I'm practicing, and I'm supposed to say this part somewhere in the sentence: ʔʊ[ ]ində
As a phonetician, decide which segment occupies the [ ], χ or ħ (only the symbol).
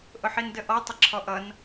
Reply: ħ